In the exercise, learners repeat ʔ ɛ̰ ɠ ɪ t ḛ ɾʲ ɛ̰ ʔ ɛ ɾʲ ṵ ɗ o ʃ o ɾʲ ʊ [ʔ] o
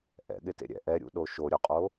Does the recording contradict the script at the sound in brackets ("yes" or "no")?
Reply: yes